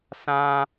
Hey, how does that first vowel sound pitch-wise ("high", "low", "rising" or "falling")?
high